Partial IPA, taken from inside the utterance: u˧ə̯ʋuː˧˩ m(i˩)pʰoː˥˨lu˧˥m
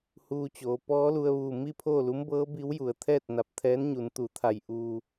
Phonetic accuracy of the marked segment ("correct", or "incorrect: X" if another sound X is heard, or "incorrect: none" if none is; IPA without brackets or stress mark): incorrect: i˥˨